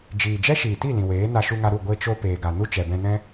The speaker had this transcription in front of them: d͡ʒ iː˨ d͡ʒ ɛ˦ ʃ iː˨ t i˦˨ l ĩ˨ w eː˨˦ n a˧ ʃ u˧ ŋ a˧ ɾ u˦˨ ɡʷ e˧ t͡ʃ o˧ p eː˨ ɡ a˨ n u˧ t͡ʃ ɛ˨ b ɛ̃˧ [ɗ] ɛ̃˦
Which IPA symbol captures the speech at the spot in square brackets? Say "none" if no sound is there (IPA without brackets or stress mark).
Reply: n